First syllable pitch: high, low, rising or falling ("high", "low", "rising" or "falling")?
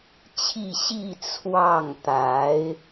falling